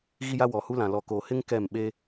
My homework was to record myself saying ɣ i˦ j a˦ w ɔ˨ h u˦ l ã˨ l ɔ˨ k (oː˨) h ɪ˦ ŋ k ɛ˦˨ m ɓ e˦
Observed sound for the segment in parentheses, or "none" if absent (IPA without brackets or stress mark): oː˨